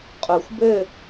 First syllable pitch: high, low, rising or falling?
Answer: low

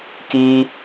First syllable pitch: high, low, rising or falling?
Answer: high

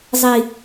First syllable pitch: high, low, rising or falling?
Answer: low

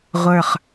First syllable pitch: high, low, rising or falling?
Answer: falling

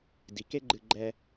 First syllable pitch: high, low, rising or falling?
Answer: low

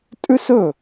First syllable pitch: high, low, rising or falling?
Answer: high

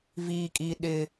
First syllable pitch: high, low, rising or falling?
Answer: high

